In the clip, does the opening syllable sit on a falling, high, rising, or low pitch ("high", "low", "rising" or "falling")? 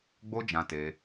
high